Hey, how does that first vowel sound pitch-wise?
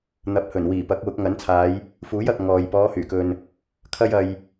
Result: rising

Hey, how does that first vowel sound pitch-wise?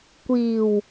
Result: low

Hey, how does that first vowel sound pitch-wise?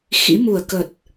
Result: rising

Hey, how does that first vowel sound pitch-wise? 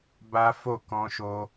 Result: high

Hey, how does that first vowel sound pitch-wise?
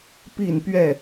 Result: falling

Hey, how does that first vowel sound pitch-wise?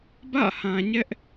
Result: falling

